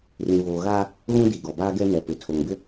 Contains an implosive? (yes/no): no